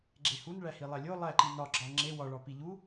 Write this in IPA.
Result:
ɡ͡ǁ e h u n ɭ æ h i lˠ æ lʲ o lˠ æ ǃ i n ɒ ɡ͡ǁ ɒ ŋ͡ǁ e w ɒ ɭ ɒ p i ʎ u

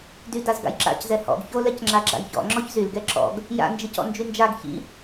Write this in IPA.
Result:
d y d a z ɡ a̰ j ǁ a̰ c z ɛ h ɔ̰ ɡ ç o l ɛ c ŋ͡ǁ a ɡ͡ǁ a̰ j ç ɔ̰ ŋ͡ǁ ɔ ç z y l ɡ ɛ ǁ ɔ̰ ɡ | j a̰ n d͡ʒ i c ɔ̰ n d͡ʒ y n d͡ʒ a ɡ ç ḭ

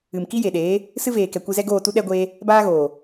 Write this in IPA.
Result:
ɨ˨ m k i˦ j e˨ ɗ eː˨˦ | s ɨ˦ v eː˨ k ɛ˨ kʷ ɨ˧ z ɛ˦ ɡ oː˦˨ t u˦ ɗ ɛ˦ ɡʷ eː˦ | b aː˦ ɣ oː˨

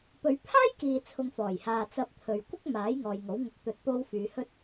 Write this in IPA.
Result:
p ɵ˨˧ ɥ pʰ aː˥ j k iː˨ t͡sʰ ʊ˨ ŋ f ɔː˨˩ j h aː˨ t͡s ɐ˨ p̚ t̪ʰ ɵ˨ ɥ kʷ ɪ˥ k̚ m aː˨˥ j ŋ ɔː˨ j ŋ o˨˥ w ŋ ʊ˧ k̚ t̪ ɵ˧ t̚ p o˧ w f yː˨˧ h ɵ˥ t̚

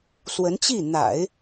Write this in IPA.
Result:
s w ə˧˥ n t͡ɕ i˥˩ n̪ a̰˨˩˦ ɪ̯

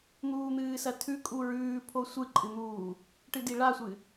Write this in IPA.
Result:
n̪ uː n̪ ɨː s ɐ tʰ ʉ kʼ u ɹ ʉː pʰ o sʷ ɨ ǃʼ ɨ n̪ uː | ʈ ɨ d i ɭ a sʷ ɨ

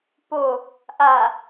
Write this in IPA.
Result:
p o | ʔ a

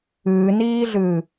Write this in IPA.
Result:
ɨː n iː ɮ ɨː

